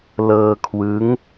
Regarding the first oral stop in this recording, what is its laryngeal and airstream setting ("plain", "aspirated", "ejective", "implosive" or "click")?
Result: aspirated